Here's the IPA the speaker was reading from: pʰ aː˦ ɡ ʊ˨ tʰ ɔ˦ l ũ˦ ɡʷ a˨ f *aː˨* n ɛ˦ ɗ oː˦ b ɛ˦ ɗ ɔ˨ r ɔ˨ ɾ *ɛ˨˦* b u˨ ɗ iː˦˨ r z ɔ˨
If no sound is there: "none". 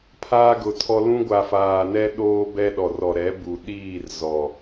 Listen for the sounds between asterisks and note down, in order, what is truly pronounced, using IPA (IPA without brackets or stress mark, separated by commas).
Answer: aː˨, ɛ˨˦